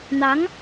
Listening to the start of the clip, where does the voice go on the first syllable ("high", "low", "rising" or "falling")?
rising